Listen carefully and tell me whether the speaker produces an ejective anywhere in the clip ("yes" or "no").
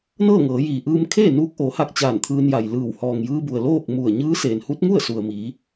no